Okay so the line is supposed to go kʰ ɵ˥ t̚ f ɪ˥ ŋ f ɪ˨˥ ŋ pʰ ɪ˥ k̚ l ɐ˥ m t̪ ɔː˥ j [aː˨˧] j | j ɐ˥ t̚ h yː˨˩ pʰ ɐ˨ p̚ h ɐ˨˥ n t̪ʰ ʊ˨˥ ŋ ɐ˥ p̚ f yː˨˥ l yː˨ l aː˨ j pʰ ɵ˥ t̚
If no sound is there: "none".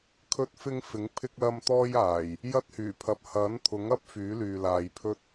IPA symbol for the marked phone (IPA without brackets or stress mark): aː˨˩